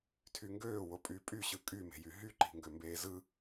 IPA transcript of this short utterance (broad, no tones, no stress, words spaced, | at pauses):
tʰyŋɡøː wopʼypʼy ɕɯkʼyme̤jy ɦyǃi̤ŋɡømbeː zɯ